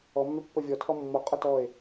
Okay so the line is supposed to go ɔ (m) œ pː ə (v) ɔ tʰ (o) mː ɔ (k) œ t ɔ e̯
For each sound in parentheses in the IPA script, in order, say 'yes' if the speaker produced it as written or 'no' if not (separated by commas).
no, no, no, no